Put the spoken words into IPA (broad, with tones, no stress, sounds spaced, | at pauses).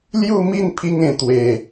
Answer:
l j u˥˧ m i˥˧ n pʰ i˧ ŋ ẽ˨˩ t̪ w e˨˩